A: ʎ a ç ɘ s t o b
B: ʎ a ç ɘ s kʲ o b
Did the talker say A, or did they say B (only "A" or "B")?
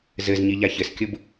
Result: B